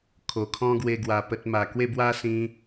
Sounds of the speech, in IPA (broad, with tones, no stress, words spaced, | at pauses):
kʰo˨˩kʰɔ̃˦ɡwe˧ ɡwa˧pə˦t̚ ma˨˩kwe˥˧bwa˦ sĩ˧